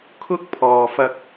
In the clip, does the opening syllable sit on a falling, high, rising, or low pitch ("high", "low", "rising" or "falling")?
high